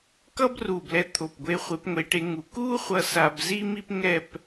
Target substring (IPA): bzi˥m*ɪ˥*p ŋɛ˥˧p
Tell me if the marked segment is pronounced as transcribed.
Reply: no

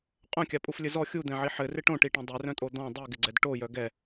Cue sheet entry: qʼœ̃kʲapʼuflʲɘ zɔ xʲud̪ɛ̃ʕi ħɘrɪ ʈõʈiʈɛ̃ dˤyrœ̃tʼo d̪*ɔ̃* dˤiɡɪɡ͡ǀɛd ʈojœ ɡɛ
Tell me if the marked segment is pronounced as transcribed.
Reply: yes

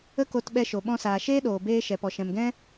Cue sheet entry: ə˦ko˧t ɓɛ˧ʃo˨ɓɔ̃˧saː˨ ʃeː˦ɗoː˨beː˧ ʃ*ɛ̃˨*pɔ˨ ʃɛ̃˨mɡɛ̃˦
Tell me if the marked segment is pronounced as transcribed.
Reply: no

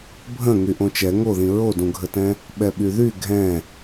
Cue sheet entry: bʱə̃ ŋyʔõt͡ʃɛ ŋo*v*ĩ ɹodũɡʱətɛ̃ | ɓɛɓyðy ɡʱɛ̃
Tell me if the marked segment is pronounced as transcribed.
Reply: no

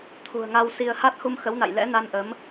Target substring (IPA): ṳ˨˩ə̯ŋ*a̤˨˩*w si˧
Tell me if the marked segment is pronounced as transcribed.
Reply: no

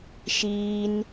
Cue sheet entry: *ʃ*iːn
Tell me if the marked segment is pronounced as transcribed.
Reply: yes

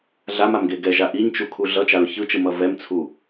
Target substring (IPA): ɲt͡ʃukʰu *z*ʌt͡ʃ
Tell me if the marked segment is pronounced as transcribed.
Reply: no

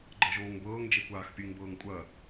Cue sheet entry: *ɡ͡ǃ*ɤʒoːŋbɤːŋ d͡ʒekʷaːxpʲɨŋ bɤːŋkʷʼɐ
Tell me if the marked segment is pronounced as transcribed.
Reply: yes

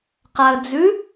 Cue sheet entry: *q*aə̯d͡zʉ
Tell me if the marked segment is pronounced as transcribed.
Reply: yes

